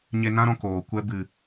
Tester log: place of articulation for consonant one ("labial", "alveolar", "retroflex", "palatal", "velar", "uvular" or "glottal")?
palatal